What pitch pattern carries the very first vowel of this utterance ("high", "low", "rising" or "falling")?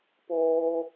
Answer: high